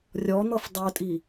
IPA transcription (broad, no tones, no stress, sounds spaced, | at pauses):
rʲ ɔ n̪ ɤ f dˤ o tʼ i